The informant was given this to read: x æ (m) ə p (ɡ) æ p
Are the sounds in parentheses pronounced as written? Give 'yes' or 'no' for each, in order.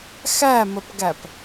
yes, yes

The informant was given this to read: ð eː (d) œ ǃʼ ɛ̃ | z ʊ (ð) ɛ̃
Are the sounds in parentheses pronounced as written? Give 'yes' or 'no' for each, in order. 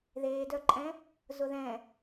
yes, yes

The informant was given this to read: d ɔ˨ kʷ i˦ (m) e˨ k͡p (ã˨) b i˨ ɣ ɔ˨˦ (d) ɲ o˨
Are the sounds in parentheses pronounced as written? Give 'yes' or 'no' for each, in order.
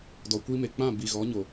yes, no, no

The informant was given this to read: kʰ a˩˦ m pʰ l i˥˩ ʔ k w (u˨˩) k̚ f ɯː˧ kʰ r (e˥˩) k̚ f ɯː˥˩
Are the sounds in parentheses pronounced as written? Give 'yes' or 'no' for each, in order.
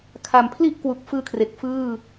yes, no

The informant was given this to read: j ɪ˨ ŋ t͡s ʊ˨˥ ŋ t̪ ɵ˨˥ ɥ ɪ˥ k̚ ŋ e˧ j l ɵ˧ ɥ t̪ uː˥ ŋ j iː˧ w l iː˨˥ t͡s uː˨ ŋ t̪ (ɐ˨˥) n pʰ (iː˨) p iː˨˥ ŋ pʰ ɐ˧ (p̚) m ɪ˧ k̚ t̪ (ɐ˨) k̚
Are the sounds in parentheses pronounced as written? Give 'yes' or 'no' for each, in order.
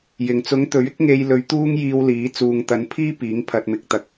yes, no, no, no

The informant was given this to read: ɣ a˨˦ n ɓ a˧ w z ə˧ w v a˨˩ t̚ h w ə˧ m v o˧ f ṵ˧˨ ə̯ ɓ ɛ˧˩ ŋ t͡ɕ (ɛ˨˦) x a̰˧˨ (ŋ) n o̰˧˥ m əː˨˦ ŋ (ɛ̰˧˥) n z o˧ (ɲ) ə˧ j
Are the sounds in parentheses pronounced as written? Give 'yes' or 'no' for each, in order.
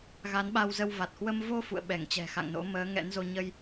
no, yes, yes, yes

